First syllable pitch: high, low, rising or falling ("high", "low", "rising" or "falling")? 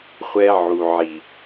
high